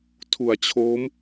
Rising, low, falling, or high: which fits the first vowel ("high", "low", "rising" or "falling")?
low